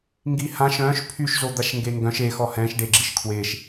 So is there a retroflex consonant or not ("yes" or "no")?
yes